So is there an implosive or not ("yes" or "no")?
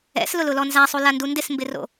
no